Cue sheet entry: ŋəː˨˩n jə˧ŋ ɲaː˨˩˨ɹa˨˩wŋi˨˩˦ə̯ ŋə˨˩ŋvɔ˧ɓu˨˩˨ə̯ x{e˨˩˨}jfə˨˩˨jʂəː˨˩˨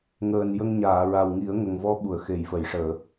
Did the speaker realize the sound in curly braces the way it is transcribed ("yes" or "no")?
yes